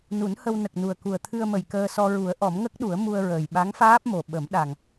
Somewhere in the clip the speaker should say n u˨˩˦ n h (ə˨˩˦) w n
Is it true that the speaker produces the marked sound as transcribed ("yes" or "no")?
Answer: no